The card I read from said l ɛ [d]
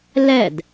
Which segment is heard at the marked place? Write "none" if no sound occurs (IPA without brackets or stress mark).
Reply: d